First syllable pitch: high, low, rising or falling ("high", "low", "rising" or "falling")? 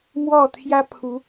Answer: falling